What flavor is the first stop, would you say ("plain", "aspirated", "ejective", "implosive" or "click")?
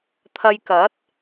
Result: aspirated